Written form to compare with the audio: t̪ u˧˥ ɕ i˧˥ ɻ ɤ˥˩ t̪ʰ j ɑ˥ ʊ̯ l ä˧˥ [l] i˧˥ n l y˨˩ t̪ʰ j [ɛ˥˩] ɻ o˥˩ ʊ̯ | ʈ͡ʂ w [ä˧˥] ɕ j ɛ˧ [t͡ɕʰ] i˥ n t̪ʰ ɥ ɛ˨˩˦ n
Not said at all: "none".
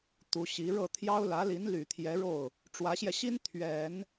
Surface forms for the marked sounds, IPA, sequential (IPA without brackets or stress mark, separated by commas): l, ɛ˧˥, ä˧˥, ɕ